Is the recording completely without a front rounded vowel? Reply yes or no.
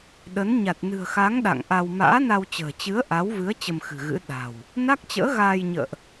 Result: yes